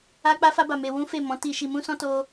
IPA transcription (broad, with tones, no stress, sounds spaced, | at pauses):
a˦ k͡p a˦ f a˦ b a˧ m e˧ w ũ˦ f e˦˨ m ɔ̃˨˦ t i˧ ʃ i˧ m ũ˦ s ɔ̃˦ t o˦